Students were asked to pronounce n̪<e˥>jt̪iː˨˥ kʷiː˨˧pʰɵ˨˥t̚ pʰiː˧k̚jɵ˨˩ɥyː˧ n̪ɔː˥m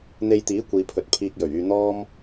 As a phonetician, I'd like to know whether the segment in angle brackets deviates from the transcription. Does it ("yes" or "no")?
yes